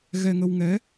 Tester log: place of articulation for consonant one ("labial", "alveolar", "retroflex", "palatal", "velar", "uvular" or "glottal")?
velar